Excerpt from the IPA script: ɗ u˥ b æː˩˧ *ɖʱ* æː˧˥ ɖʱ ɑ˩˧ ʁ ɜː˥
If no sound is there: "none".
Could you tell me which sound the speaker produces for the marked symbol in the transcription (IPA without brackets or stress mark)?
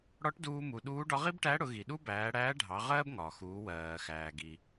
ɽ